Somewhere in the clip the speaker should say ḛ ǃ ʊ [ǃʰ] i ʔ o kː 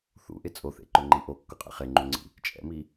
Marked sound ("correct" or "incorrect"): incorrect